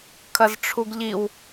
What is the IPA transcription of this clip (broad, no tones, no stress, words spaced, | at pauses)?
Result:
kʰɐzʈ͡ʂʰuɡʎiw